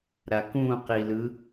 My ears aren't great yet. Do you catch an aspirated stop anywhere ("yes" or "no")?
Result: no